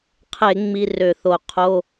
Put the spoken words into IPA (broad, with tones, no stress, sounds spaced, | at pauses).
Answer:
qʰ e˧˩˧ ŋ͡m i˧˥˧ r ø˧˩˧ θ o˧˩˧ qʰ o˧˥˧